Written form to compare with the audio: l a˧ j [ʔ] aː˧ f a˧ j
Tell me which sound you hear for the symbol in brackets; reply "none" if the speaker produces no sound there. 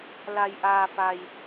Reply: ʔ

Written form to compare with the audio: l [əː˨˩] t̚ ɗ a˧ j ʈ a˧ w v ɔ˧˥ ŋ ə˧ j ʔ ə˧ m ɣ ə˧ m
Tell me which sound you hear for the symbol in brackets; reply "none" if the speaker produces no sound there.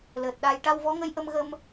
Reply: əː˨˩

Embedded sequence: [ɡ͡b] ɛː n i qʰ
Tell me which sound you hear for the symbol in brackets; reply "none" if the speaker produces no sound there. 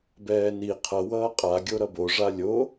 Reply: b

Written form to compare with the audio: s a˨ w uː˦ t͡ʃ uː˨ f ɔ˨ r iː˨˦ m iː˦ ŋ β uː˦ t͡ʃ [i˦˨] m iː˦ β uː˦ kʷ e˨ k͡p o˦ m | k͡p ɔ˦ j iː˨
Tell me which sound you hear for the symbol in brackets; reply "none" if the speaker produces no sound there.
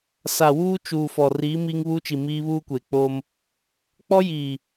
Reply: i˨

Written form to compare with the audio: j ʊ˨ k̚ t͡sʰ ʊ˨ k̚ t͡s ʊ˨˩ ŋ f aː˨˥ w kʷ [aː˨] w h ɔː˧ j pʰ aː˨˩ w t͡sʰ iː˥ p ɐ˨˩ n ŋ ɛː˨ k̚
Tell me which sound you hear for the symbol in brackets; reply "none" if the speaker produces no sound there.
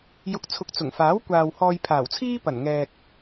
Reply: aː˨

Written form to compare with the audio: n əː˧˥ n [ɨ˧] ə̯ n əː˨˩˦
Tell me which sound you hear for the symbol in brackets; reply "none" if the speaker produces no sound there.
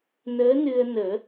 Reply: ɨ˧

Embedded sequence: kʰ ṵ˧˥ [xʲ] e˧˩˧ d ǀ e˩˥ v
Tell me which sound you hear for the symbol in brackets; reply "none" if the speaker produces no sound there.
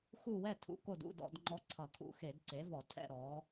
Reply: x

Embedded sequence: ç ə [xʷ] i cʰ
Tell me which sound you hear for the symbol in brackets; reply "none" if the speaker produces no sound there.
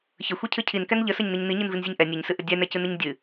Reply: xʷ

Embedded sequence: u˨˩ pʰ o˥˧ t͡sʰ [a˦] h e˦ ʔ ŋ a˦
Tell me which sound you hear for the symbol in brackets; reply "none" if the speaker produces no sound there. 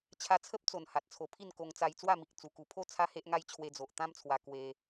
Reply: a˦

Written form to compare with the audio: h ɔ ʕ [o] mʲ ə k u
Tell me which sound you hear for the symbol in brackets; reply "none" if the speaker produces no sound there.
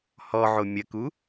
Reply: o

